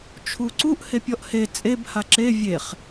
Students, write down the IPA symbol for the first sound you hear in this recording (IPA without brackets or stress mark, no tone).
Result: t͡ʃʰ